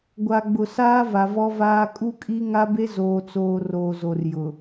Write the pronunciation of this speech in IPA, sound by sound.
ɡʷa˨ɡ͡bʊ˨saː˦ va˨vɔ˦vaː˦ kʼu˦kʼi˦ ŋa˦be˦ zoː˨t͡soː˨ roː˨ zo˨rjʊ˨

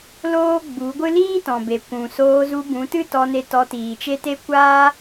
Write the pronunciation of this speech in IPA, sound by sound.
loː˦ɡ͡bu˨˦ɡʷɨ˦ liː˦tɔ̃˨be˨ kʷũ˨soː˧zu˧ bũ˨˦tɨ˦tɔ˧ne˧ tɔ˧tiː˨t͡ʃe˦te˦ kʷaː˦

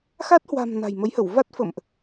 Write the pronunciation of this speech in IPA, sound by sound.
xa˦˥t̚hwa̤˨˩m na̤˨˩jmə˨˦jhə˧˩w va˦˥t̚fə̰˧˨mʔ

